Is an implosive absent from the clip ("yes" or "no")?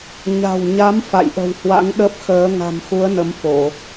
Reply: no